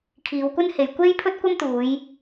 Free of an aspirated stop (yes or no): no